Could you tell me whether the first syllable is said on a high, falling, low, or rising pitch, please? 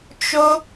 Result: high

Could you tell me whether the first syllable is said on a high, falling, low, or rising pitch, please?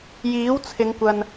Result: rising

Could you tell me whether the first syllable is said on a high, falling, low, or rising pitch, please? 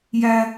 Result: high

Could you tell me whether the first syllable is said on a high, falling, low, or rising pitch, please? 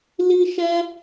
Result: high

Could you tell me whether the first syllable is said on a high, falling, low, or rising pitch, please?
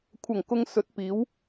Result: low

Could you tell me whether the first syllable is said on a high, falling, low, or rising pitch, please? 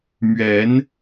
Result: rising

